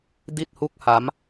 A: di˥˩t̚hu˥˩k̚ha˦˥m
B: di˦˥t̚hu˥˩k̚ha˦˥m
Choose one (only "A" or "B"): A